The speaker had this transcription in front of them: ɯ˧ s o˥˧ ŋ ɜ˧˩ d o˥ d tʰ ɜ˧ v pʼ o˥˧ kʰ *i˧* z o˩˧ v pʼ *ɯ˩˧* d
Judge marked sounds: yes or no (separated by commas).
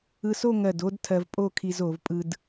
yes, no